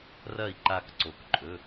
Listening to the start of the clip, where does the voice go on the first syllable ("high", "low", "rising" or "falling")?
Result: falling